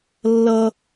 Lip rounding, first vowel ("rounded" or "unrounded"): unrounded